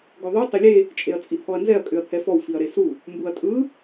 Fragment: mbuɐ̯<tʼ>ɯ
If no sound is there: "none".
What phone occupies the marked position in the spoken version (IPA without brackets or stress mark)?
tʼ